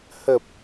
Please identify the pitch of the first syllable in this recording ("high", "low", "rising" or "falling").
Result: low